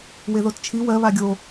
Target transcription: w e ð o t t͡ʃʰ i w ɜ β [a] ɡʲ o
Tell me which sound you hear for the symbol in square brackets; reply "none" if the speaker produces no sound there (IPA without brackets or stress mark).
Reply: a